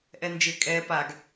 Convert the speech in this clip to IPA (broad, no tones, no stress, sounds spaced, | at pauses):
ʔ ɛ n d͡ʒ ɪ kʼ ɛ p a ɡ